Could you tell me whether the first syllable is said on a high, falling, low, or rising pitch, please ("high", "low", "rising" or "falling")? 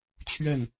falling